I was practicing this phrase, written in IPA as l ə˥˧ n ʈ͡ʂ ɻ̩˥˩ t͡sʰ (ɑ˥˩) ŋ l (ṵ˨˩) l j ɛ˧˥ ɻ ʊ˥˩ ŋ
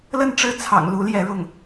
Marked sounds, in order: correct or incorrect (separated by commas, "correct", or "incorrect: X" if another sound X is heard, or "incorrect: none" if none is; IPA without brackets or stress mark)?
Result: incorrect: ɑ̰˨˩, incorrect: u˧˥